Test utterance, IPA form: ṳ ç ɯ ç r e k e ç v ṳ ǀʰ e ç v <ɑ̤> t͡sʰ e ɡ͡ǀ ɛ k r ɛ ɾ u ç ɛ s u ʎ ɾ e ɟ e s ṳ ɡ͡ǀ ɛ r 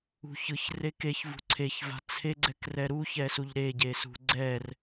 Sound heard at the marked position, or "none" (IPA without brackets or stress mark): a̤